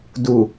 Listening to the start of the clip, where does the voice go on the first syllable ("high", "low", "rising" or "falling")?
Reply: low